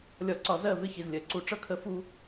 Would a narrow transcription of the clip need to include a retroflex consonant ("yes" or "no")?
yes